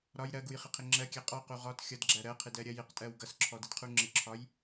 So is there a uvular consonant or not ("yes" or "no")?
yes